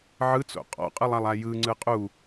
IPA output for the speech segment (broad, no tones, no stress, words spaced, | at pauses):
ʕɯt͡so̰ qʼɔ̰qʼɯlˠalˠa jɯŋ͡ǀɯ qʼu